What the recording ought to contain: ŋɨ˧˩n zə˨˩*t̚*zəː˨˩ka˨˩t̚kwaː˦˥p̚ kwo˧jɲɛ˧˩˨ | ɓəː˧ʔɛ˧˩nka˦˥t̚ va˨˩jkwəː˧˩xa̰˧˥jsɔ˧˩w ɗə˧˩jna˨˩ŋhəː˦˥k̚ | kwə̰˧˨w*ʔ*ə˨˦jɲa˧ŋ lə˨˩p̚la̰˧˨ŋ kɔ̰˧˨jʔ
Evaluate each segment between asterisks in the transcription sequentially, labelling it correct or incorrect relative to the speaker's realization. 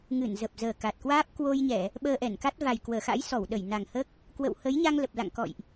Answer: incorrect: p̚, incorrect: h

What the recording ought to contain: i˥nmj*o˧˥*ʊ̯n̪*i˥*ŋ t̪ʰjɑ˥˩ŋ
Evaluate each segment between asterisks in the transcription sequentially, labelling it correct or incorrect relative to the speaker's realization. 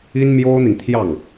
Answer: incorrect: o˥, incorrect: i˨

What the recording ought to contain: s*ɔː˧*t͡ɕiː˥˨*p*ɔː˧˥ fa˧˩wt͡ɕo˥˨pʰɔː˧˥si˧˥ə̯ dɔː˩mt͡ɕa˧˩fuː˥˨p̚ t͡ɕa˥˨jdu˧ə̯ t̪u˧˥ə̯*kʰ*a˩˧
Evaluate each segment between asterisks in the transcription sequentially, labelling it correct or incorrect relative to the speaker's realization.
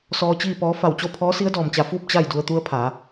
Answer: correct, correct, incorrect: pʰ

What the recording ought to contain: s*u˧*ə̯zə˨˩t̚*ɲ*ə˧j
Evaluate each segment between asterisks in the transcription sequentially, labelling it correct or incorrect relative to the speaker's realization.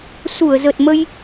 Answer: incorrect: u˧˩, incorrect: m

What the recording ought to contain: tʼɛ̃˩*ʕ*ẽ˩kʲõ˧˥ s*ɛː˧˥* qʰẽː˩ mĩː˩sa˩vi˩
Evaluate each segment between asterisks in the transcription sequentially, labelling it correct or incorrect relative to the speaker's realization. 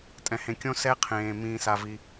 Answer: incorrect: h, incorrect: ɛ˧˥

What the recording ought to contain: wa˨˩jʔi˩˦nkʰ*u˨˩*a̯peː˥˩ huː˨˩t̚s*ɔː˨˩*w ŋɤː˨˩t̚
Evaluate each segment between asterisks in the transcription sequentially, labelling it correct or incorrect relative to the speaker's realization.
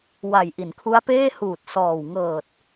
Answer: incorrect: u˦˥, correct

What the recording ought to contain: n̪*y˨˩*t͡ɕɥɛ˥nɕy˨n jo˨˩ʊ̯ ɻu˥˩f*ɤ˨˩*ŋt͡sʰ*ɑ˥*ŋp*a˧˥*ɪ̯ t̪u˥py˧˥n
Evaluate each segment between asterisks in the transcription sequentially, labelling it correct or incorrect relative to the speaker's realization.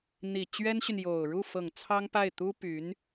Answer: incorrect: i˨˩, correct, correct, incorrect: a˥˩

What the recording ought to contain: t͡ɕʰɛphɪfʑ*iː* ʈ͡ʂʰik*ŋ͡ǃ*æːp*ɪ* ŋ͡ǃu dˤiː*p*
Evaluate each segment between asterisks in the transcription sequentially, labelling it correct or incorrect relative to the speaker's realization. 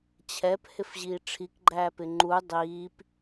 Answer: correct, incorrect: ɡ͡ǃ, correct, correct

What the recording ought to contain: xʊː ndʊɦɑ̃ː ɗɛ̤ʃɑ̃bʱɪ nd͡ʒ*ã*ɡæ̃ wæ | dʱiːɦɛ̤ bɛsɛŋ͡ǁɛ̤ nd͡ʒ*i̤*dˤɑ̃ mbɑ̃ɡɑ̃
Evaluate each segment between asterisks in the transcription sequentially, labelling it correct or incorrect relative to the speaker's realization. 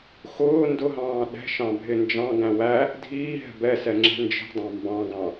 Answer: incorrect: ɑ̃, correct

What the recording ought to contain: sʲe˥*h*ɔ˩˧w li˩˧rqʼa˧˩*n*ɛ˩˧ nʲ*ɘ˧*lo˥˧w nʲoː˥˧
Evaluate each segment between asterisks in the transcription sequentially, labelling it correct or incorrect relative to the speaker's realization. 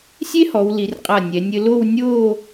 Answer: correct, incorrect: nʲ, correct

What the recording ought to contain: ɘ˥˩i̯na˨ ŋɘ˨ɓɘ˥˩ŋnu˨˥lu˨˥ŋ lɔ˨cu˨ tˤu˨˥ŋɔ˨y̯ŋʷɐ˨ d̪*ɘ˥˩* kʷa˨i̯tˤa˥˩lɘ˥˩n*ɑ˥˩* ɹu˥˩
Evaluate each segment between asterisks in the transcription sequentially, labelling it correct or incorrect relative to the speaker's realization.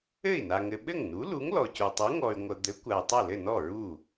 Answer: incorrect: ɘ˨˥, incorrect: ɔ˥˩

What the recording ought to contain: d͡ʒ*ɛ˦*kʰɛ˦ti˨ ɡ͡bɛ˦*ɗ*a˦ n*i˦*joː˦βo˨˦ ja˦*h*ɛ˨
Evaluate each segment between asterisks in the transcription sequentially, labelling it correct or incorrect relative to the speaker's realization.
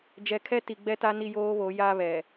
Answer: incorrect: ɛ˨, incorrect: t, correct, incorrect: β

